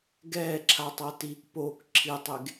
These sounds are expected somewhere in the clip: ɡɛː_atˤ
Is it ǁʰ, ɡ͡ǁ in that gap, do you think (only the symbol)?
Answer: ǁʰ